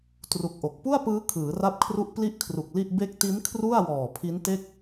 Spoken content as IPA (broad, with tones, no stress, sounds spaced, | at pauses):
t r u˨˩ k̚ ʔ o˨˩ k̚ p u˥˩ a̯ p ɯː˦˥ kʰ ɯː˩˦ r a˥˩ p̚ kʰ r u˥˩ ʔ p l i˥˩ ʔ kʰ r u˨˩ k̚ l i˥˩ ʔ b e˦˥ k̚ t i˦˥ n kʰ r u˥˩ a̯ w ɔː˨˩ pʰ i˦˥ n t e˥˩ k̚